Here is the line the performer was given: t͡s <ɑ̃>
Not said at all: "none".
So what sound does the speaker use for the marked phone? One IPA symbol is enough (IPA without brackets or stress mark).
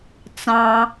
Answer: ɑ̃